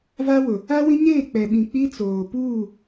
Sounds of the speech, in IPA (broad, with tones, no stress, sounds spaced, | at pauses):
v a˦ w ʊ˨ | a˦ w ĩ˦ ɲ eː˦˨ k͡p ɛ˨ ɓ ĩ˨ k͡p i˦ t͡s oː˨ p uː˦˨